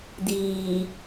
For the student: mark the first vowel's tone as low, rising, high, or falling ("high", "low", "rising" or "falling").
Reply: low